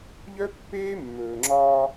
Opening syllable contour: high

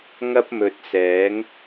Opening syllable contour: high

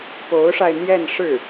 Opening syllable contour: rising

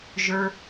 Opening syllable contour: high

